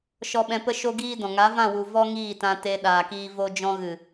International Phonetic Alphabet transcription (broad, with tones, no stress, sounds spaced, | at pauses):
ʃ ɔ˧ ɓ ɛ̃˧ p ə˦ ʃ o˦ ɡ iː˦ d ɔ̃˨ ŋ a˨˦ v ã˦˨ w u˨ v ɔ˦ ŋ iː˦˨ t ã˧ t e˧ ɗ aː˨ k iː˧ v o˧ d͡ʒ ɔ̃˧ ɣ ɨ˨